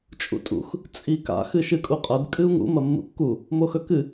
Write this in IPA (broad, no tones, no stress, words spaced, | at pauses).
t͡ʃʼṵtʼṵx | t͡sʼika̰ xɨʃɨkʼuqʼɐd kʼɨu̯ŋṵ mɐmːṵkːu | moxɵkɨ